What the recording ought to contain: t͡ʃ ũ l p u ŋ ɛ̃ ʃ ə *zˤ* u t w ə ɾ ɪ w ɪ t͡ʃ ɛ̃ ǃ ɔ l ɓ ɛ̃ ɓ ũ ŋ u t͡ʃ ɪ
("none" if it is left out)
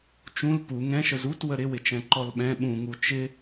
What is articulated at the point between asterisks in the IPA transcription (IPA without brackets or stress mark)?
z